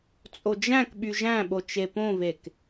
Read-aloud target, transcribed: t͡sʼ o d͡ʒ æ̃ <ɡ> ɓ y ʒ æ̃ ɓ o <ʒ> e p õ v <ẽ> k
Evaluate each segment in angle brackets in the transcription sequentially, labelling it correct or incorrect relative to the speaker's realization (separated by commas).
incorrect, incorrect, incorrect